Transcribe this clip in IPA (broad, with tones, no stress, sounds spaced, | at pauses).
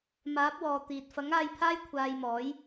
m aː˨˥ p̚ w ɔː˨ t̪ iː˨ t̚ f ɐ˨˥ ŋ aː˧ j pʰ aː˥ j kʷʰ aː˧ j m ɔː˨˥ j